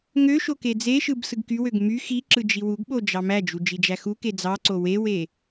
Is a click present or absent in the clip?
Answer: present